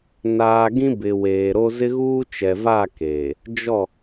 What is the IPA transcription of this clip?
n aː˨ ɡ ĩ˦ b ɪ˨ w eː˨ ɾ o˦ z ɪ˦ ɣ uː˦ t͡ʃ ɛ˨ v a˦˨ k eː˨ | d͡ʒ ɔ˦˨

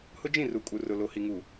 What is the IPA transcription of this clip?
h ʊ˦ d͡ʒ ĩ˦˨ r u˨ kʼ u˨ r ʊ˨ l o˨ h i˨ ŋ uː˨

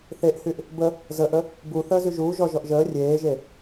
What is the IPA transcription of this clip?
θ e ʔ h y ʔ | b ə | z ə ʔ ə | b u θ əː z y ʒ uː ʒ ɔ ʒ ɔ ʔ ʒ əː rʲ eː ʒ e

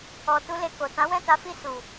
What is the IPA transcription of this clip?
ɔ˨ t u˧ l e˨ k o˨ t ã˨˦ w ɛ̃˦˨ t a˨˦ f i˦˨ s u˨

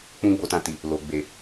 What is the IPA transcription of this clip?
k͡p ũ˦ ɡ͡b o˧ t ã˧ t i˨ | l o˨ ɡ͡b e˨

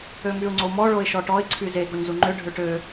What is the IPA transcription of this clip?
ø m y ʊ̯ ŋ͡ǀ o m ɔ ɭ o ɪ̯ ʃ ɔ ʈ ɔ ɪ̯ ǀʰ y z e ɡ o ɲ z u ŋ͡ǃ ø ɖʱ ø ʈ ø

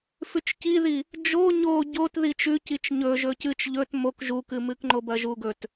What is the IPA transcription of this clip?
f ʉ t͡ʃ c i ð i | d͡ʒ o ɲ o ɟ o t ð i t͡ʃ ʉ c i t͡ʃ ɲ ɵ ʒ ɵ c ɨ t͡ʃ ʎ ɵ t m o k ʒ u k ɨ m ɨ k ŋ͡ǃ o b ɐ ʒ u ɡ ɵ t

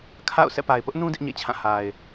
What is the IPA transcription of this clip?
kʰ a̰˦˨ ʊ̯ s ɛ̰˦˨ p a˨ ɪ̯ p ʊ˦ ʔ n ũ˦ d ɪ˦ ʔ ɲ ḛ˦˨ t͡ɕʰ ã˦˨ h a˨ ɪ̯

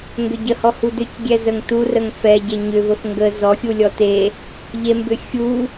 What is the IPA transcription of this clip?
ŋ ɡ ʏ ɟ ə h ɔ h u d ʏ c ɡʲ ɛ z ə ŋ t u r ə ŋ f ɛ ɟ e ɲ ʏ v ə f ŋ ɡ ə z ɔ xʲ u lʲ ɔ t e | ʎ e m b ʏ xʲ u

